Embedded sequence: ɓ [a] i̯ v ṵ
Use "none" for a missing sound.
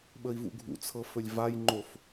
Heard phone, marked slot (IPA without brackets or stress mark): ə